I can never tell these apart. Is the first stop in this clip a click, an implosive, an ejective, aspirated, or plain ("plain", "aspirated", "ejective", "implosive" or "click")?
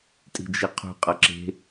ejective